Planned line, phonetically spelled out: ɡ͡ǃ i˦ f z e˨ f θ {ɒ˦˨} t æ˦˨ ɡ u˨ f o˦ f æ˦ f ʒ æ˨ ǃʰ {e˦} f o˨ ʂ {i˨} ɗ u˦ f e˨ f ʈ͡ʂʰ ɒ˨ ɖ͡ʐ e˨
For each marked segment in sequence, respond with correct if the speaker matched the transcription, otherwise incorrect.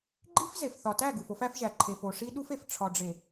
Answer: incorrect, incorrect, incorrect

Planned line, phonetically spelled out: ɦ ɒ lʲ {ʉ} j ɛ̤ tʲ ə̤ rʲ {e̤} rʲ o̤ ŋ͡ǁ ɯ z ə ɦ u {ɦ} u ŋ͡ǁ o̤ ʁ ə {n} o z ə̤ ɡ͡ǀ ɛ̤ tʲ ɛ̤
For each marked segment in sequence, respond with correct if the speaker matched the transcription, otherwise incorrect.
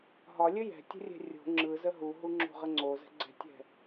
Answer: incorrect, incorrect, correct, incorrect

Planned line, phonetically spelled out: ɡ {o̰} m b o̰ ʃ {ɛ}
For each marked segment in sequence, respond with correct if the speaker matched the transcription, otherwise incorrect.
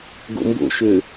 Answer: correct, incorrect

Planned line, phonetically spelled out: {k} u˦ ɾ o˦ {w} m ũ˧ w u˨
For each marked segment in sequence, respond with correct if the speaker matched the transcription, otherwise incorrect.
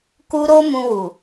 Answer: correct, incorrect

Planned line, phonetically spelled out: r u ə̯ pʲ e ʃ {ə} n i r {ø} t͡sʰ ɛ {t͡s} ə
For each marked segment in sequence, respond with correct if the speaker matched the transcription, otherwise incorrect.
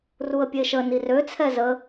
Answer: correct, correct, incorrect

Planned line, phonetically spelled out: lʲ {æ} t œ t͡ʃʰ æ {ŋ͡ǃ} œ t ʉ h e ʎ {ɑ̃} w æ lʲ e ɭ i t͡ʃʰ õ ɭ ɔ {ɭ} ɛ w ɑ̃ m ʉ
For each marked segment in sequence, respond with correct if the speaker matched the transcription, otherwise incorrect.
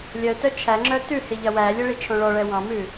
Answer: incorrect, incorrect, incorrect, correct

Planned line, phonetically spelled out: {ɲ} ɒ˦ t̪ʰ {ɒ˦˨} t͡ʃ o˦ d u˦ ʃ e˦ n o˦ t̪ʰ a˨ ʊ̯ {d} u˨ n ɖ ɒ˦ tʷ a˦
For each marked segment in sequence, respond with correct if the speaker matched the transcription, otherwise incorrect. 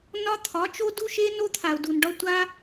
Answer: incorrect, incorrect, correct

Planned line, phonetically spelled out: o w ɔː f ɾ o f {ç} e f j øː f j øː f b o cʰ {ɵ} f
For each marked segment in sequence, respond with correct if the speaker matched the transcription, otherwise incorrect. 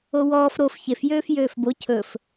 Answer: correct, correct

